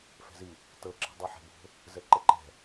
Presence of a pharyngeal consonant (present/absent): present